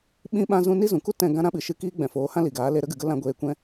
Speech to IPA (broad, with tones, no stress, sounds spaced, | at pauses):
ɓ ĩ˧ ɓ ã˧ z ũ˧ n i˦ z ũ˨ k u˦ t ɛ̃˦˨ ɡ ã˦ ɾ ã˦ ɓ ɨ˨ ʃ ɨ˧ k iː˧ ɡ͡b ɛ̃˨ f oː˨˦ h ã˦ l i˨ ɡ aː˨˦ l e˧ ɾ ə˦ ɡ ɨ˨ ɡ ə˦ l ã˦ ɡʷ eː˦ kʷ ɛ̃˦